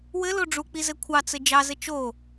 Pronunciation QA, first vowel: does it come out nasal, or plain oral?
oral